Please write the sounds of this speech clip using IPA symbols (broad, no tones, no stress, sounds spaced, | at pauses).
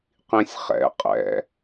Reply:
q ĩ sʲ χ ɛ̰ qʼ ɛ̰